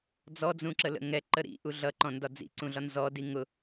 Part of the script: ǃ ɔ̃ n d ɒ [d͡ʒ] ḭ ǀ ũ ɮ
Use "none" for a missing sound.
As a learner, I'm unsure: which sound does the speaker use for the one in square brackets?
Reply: d͡z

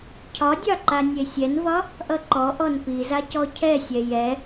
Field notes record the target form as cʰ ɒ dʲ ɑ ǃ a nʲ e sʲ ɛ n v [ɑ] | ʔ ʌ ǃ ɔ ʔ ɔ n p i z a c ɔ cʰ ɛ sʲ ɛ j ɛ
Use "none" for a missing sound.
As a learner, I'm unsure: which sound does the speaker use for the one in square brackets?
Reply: ɒ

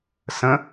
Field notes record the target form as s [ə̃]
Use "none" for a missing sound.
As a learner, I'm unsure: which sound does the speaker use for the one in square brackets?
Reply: ə̃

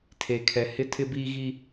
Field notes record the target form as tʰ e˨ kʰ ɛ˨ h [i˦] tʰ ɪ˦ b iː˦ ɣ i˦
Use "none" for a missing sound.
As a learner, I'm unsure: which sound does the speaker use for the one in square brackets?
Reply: ɪ˦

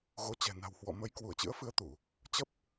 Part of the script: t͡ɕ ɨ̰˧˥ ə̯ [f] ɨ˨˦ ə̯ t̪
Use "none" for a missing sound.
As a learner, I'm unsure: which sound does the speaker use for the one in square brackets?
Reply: f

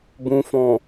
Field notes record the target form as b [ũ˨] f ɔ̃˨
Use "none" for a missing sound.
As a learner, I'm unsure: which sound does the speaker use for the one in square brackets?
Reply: ũ˨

